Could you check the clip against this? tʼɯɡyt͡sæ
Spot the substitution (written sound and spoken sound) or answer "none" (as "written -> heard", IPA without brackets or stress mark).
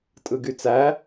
none